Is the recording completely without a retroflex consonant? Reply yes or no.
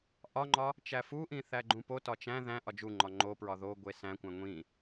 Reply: yes